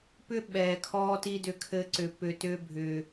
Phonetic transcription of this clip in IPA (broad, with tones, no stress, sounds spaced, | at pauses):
p ʏ˦ ɓ ɛː˨ kʰ ɔː˧ t i˧ d ʏ˧ kʰ ɘ˧ ǀ ʏ˨ p ʏ˨ t ʏː˧ bʱ ʏː˨